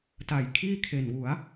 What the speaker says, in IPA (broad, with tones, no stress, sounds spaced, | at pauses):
t a˩˦ j kʰ iː˥˩ kʰ e˨˩ n w u˩˦ a̯